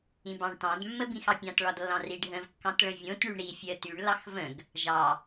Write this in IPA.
ĩ b ɑ̃ ɳ t ɑ̃ d mː ə b ĩ x ɑ pʲ ɑ̃ t ɭ ɒ d lː ɑ̃ r i ɖʱ ə̃ v kː ɑ̃ t ɭ ə̃ vʲ õ t ɳ y ɳ ɾ i fʲ ə t y ɳ l ɑ x v ə̃ ɡ | ʒ ɑ

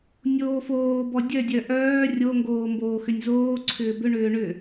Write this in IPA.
nʲ oː f oː b ɔ dʲ œ dʲ œ ʔ œː rʲ o ŋ ɡ oː m b oː x ʏ nʲ z oː ǀʰ ʏː b ʏ ɳ ʏː ɳ ʏ

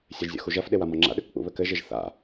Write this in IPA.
sʲ ɛ ʒ zʲ ɔ̰ x u ʒ ɐ f ɗ e w a m ɔ ŋ͡ǁ a̰ ɗ ɘ k k͡p ṵ β ɘ k ɘ ʒ e ʒ θ a̰

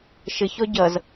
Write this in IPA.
ʃ ɘ ç ɔ ɟ ʌ z

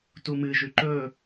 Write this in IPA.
t u m ɨ ʒ ʉ ǃ ɵ

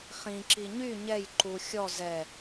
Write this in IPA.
χ ĩ ǁ i ɲ y ɲ ɛ j ǃ u xʲ ɔ z ɛ

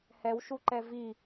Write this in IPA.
h ɛ w ʃ u ǃ ɛ v i

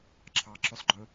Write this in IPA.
ǁʰ ɑ ǁ ø sˤ ɡ͡ǃ ɵ

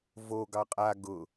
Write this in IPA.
v o ɡ ɑ qʼ a ɡ ʊ

